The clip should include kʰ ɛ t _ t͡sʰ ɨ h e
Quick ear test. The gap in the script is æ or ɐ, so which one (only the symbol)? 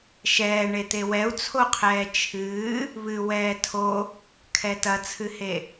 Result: ɐ